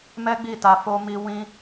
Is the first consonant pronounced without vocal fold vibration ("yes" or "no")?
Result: no